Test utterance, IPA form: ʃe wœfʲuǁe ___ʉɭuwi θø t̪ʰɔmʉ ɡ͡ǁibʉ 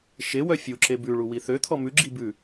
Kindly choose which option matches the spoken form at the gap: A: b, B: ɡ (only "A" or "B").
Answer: A